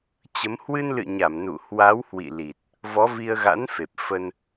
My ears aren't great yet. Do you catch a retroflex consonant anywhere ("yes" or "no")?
no